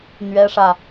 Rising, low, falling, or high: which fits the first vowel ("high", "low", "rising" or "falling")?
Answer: high